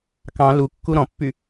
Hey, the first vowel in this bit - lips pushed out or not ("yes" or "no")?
no